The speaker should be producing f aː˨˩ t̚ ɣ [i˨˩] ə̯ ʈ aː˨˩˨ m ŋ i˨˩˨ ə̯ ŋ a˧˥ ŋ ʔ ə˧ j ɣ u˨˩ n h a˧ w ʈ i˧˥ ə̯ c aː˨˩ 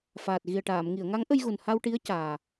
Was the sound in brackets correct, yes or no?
yes